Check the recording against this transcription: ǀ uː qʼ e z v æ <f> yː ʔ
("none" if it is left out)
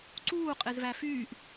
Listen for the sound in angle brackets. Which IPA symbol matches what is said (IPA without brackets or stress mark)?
f